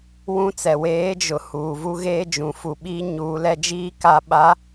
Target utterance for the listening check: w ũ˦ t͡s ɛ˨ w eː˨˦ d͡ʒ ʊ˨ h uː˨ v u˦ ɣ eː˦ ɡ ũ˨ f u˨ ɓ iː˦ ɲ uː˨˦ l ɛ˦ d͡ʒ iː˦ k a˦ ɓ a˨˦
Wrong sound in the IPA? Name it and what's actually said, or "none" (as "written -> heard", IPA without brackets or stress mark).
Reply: ɡ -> d͡ʒ